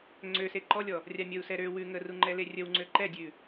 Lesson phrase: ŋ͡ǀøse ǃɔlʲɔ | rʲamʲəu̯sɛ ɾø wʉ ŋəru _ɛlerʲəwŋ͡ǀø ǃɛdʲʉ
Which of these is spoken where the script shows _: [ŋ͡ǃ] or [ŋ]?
ŋ͡ǃ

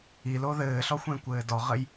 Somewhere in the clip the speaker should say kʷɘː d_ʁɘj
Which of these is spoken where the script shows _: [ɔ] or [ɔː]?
ɔ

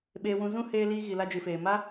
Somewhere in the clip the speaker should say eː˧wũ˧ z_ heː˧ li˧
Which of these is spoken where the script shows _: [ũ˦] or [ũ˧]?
ũ˦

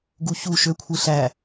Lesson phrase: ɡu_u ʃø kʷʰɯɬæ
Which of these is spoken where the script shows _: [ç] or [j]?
ç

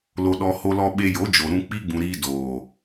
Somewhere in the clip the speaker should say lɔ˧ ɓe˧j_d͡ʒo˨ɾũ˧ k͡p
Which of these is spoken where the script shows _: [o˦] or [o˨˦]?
o˨˦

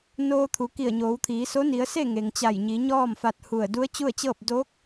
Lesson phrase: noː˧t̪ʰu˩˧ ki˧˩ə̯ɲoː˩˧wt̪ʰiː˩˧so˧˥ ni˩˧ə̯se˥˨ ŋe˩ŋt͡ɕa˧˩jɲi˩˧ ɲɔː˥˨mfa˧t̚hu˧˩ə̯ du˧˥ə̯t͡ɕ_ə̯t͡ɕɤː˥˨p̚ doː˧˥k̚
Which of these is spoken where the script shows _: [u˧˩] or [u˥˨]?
u˥˨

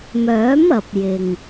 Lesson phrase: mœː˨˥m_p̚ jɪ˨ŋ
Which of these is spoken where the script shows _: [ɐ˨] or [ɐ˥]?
ɐ˨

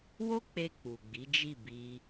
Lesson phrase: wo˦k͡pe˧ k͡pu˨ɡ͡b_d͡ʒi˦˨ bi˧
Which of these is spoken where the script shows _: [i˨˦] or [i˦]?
i˨˦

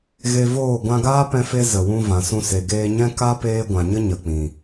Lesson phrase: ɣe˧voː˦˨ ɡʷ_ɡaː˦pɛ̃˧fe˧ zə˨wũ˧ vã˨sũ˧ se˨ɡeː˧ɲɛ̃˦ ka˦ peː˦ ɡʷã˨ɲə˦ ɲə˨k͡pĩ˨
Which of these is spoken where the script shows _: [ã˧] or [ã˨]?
ã˧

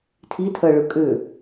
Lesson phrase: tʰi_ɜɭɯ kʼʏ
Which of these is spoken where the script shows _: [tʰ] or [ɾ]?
tʰ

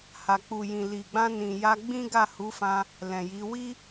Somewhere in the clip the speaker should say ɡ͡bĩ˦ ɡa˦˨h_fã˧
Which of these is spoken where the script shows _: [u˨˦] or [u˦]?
u˨˦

